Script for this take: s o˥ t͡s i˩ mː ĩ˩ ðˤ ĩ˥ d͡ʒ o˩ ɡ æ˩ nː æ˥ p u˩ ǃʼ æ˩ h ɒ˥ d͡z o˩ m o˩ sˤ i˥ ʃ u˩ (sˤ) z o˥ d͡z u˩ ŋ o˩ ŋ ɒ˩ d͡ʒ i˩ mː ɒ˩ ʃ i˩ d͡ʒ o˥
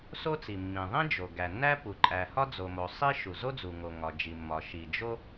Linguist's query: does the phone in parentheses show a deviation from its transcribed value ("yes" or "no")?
yes